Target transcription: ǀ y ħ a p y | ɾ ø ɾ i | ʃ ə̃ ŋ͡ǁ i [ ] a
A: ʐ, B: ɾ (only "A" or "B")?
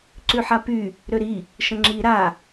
B